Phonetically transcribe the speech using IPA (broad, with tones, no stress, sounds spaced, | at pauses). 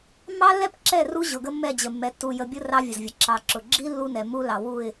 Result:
mː ɑ˦ lː ɛ˦ p ǁ ɛ˦˨ r u˦ ʑ ʊ˨ ɡ ə˦ mː ɛ˦˨ d͡ʑ ə˨ mː ɛ˨ tː u˨ j ə˨ bʲ ʊ˦ r ɑ˦ vʲ ə˨ z vʲ ə˨ ǁ ɑ˨ ǁ ʊ˨ ɡ͡ǁ i˦ lː u˦ n ɛ˨ m u˦ l ɑ˨ w u˦˨ ɪ̯